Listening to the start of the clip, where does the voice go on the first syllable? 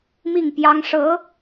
falling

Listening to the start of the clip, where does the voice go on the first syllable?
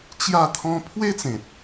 falling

